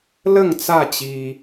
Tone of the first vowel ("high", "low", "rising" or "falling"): falling